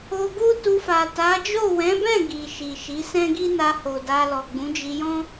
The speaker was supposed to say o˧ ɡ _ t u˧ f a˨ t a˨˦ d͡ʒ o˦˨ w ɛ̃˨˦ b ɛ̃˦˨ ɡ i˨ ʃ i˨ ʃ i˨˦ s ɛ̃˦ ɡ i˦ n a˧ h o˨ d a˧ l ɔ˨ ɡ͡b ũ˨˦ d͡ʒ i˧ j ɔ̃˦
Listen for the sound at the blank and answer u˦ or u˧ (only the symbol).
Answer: u˦